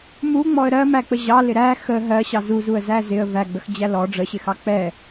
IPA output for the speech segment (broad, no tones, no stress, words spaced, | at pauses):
muŋ͡mɔə̯ ɾɜmæk͡pə ʑɑlɪ ɾæ xə ɦɜɕɑ zuzuə̯zæ zɪə̯ væɡ͡bəxd͡ʑæ lɔ ɖ͡ʐəɕɪxɑ k͡pɛ